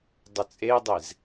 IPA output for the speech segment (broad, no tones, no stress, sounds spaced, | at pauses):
dˤ ə t͡sʼ e dˤ e z